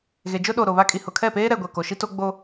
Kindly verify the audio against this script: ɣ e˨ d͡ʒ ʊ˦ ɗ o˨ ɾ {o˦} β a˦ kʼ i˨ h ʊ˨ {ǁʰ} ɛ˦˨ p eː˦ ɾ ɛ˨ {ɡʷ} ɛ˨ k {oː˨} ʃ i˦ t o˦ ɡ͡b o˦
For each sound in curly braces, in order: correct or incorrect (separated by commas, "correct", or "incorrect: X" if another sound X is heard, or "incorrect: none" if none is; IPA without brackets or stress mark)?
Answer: incorrect: o˨, incorrect: kʰ, correct, incorrect: o˨